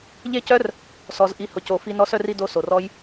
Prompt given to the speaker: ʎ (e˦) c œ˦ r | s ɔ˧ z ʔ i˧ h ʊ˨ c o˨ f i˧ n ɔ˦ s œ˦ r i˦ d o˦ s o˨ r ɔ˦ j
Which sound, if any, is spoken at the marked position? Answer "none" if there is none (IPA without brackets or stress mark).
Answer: e˦